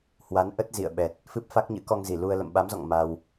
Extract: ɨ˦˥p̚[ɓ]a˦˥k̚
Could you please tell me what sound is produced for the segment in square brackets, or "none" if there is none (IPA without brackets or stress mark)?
f